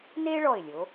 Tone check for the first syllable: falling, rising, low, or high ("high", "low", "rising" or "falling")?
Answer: high